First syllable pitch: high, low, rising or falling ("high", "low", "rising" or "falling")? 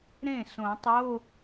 falling